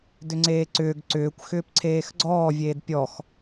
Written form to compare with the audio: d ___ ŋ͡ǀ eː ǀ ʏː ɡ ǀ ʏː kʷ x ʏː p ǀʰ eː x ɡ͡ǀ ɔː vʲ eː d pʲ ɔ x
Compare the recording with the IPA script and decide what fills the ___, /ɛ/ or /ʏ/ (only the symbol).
ʏ